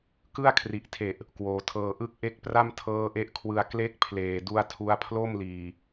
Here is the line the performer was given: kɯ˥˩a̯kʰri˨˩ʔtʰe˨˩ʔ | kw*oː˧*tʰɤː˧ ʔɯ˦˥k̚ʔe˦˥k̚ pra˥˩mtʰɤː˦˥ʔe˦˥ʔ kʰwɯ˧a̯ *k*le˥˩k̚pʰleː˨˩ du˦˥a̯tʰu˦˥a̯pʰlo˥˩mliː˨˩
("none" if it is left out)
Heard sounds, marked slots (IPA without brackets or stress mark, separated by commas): oː˩˦, k